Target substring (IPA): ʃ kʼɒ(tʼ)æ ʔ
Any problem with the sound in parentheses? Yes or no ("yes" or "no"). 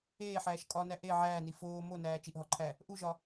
yes